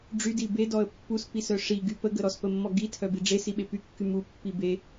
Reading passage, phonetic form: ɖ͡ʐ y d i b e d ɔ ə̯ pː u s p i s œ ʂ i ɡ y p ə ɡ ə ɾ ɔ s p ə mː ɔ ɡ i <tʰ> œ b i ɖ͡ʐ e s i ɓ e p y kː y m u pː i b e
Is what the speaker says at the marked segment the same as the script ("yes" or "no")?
yes